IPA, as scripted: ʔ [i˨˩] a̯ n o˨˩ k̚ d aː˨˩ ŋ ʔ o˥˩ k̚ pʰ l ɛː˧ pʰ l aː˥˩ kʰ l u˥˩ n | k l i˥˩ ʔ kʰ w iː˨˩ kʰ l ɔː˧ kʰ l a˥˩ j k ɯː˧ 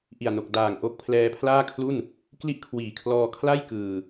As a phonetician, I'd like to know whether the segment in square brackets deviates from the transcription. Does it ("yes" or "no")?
no